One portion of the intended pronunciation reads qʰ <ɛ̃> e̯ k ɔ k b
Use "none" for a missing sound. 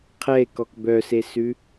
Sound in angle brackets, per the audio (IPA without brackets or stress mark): ɛ